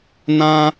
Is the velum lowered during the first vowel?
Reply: yes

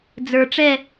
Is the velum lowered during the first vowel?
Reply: no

